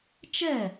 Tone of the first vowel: falling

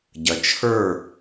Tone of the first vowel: low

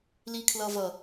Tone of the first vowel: low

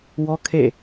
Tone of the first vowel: high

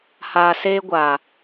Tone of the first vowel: low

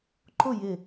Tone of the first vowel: falling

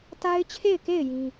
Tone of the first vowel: high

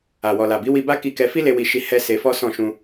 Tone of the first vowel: low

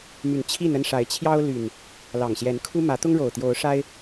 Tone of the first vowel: rising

